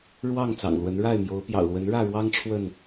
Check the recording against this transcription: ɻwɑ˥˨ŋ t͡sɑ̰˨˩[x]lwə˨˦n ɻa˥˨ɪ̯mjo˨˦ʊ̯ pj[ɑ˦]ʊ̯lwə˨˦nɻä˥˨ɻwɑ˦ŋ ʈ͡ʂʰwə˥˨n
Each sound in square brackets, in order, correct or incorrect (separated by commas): incorrect, incorrect